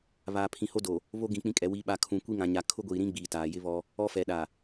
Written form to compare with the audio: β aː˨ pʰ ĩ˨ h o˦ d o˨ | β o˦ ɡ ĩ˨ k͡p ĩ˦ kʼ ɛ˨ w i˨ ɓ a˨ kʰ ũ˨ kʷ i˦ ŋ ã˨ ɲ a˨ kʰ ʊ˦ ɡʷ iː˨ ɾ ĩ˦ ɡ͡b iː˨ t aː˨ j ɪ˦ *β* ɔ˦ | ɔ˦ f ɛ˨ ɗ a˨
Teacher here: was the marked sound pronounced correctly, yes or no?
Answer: yes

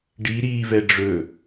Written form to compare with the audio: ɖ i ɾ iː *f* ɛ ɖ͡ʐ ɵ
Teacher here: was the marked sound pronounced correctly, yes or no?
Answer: no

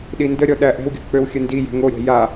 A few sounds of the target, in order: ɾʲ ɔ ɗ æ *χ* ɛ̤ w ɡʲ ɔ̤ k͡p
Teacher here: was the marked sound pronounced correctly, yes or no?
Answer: no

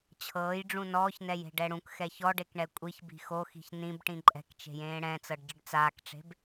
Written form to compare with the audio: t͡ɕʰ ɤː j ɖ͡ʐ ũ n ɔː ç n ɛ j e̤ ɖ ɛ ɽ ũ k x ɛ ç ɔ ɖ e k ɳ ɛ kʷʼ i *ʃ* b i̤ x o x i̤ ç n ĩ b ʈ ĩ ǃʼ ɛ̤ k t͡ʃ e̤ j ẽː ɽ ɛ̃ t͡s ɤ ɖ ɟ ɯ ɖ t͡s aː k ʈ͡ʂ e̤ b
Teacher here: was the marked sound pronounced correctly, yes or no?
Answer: no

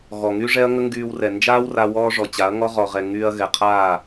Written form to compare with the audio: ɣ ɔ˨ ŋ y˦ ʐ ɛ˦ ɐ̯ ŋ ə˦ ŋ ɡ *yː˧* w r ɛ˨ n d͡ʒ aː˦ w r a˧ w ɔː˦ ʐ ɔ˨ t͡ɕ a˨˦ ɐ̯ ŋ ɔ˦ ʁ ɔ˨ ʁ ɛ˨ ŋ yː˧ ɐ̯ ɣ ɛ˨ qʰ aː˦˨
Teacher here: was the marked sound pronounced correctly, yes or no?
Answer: yes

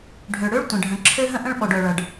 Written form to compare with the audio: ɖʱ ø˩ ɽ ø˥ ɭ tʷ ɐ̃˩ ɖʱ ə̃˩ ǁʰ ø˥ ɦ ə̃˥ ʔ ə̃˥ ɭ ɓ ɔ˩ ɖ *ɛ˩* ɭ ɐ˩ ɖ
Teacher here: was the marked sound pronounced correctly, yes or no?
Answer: no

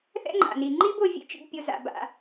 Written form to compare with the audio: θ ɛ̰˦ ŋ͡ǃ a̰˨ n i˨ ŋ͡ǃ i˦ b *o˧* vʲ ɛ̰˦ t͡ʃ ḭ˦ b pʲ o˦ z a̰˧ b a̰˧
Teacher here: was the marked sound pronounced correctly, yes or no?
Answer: yes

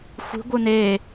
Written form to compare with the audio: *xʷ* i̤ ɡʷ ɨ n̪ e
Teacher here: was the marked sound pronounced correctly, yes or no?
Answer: yes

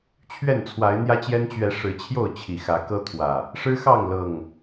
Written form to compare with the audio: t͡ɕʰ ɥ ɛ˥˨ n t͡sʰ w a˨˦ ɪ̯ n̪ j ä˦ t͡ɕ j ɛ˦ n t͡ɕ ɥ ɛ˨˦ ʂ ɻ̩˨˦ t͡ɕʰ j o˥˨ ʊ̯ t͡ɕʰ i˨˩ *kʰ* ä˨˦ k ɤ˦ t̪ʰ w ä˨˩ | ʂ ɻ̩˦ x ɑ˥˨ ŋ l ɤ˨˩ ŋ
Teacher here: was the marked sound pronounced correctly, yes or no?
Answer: no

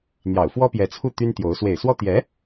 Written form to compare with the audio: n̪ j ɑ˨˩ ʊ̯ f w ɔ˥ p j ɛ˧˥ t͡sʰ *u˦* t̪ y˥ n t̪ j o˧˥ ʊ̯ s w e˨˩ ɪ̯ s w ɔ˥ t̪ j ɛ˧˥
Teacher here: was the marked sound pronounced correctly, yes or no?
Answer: no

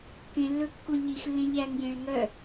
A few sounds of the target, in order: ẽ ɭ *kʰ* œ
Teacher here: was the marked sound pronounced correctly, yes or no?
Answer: no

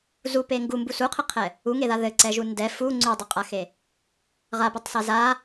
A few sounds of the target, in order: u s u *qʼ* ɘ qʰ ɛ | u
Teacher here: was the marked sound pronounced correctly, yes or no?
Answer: no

